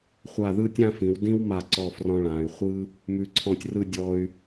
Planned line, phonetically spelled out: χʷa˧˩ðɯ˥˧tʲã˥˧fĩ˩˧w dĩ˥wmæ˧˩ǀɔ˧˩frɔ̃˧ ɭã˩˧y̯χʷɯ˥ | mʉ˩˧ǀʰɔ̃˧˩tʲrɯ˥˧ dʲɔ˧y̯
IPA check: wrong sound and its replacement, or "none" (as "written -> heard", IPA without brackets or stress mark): æ˧˩ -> a˧˩